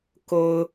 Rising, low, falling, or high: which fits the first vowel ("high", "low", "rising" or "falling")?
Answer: low